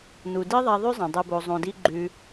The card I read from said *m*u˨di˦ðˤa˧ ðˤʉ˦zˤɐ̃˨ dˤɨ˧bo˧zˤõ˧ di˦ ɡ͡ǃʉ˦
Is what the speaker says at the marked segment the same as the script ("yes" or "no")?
no